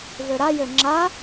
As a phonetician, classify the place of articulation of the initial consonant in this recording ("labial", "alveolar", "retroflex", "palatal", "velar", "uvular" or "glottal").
labial